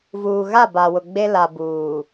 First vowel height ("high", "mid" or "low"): high